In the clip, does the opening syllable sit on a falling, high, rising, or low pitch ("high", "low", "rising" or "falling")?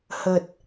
low